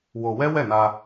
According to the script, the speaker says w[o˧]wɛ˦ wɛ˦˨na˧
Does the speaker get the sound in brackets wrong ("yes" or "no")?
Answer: no